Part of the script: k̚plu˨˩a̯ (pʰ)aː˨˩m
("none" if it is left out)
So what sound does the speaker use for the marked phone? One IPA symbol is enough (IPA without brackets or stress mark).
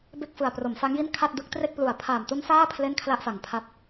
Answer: pʰ